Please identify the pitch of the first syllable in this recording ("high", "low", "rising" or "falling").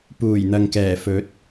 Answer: low